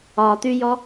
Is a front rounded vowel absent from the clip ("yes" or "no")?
no